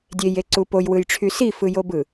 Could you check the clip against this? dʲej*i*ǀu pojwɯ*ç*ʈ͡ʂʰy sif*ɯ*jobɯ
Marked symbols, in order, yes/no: no, no, yes

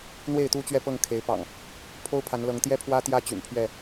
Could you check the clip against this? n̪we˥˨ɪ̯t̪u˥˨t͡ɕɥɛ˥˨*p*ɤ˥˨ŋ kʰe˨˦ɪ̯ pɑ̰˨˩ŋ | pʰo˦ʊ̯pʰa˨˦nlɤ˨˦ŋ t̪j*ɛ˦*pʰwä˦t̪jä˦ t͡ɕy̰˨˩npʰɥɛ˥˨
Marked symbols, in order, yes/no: yes, yes

